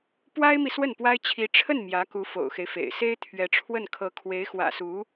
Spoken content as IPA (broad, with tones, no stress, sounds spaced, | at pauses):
p w a˥ ɪ̯ m i˨ s w ə˥˩ n p w a˥ ɪ̯ t͡ɕʰ i˧˥ ʈ͡ʂʰ ə˥˩ n m j ä˧˥ k u˧˥ f o̰˨˩ ʊ̯ x e˦ ɪ̯ f ḛ˨˩ ɪ̯ s e˥ ɪ̯ t̪ʰ ɥ ɛ˧˥ ʈ͡ʂʰ w ə˥˩ n kʰ ɤ˧˥ kʰ w e˧˥ ɪ̯ x w ä̰˨˩ s u˧˥